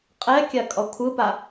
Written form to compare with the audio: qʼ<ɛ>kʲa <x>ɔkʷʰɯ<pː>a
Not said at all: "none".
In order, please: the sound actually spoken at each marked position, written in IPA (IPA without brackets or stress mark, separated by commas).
ɛ, kʼ, p